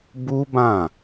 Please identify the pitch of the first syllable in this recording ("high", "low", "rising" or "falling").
high